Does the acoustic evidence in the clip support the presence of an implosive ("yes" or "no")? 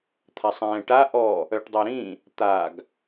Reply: no